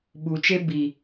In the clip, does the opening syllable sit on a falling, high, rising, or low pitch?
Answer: low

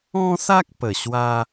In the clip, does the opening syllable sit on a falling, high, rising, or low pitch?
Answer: high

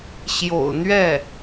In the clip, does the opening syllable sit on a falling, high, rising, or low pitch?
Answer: low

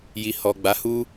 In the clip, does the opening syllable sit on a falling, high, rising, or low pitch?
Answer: low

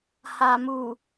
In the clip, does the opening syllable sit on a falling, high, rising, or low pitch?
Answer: low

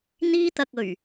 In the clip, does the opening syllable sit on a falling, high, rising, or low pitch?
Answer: high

